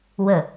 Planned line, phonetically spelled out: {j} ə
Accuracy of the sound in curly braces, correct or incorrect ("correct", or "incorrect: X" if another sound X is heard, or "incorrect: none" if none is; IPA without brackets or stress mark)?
incorrect: w